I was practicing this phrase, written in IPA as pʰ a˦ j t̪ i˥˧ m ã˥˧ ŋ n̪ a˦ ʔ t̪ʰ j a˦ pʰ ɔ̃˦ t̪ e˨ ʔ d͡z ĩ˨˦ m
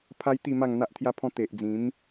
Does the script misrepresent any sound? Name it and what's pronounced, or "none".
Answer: ã˥˧ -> a˥˧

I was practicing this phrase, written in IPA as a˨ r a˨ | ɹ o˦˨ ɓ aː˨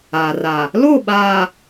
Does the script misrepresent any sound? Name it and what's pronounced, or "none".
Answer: ɹ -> l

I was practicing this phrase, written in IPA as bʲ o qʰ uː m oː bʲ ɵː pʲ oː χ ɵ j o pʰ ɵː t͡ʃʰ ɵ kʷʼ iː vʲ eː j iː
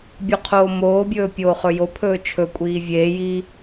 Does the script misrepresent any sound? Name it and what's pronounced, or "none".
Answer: uː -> oː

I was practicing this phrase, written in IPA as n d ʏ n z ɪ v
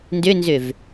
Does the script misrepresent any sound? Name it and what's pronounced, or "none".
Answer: ɪ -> ʏ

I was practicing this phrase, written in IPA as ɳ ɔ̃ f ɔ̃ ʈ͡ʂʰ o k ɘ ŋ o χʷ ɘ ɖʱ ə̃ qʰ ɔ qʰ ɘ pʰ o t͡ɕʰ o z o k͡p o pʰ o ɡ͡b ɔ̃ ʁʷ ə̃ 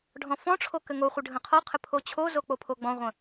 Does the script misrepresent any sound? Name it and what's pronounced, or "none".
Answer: ɳ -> ɖʱ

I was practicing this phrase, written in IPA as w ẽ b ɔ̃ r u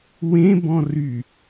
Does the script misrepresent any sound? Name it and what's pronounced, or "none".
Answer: u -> y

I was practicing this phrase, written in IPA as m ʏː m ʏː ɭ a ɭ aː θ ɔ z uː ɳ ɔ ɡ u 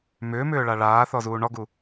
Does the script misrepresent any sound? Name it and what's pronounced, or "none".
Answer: none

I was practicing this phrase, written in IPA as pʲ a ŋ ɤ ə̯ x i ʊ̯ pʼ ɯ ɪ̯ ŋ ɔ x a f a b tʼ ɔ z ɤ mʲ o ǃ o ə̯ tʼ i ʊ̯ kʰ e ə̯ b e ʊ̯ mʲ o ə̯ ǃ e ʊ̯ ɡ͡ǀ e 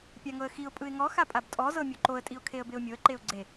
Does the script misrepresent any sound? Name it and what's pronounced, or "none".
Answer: f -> pʼ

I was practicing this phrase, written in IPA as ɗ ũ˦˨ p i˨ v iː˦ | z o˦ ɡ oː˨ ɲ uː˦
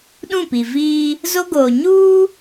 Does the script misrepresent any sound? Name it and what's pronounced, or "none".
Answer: none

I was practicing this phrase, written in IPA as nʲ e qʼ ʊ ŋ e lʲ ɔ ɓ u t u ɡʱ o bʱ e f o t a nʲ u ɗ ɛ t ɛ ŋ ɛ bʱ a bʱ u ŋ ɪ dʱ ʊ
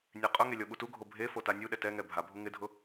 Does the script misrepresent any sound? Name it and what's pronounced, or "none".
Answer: none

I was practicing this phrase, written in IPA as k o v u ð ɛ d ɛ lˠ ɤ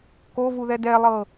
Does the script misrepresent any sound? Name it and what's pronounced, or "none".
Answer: none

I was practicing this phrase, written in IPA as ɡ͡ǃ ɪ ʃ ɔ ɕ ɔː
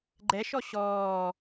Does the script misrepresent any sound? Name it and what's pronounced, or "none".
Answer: ɪ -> ɛ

